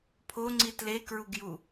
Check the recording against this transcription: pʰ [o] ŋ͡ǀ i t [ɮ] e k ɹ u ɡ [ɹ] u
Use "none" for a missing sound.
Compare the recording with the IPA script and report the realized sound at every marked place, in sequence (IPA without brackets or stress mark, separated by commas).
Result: o, l, j